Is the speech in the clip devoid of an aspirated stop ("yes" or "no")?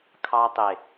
no